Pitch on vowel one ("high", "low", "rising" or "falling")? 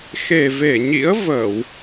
low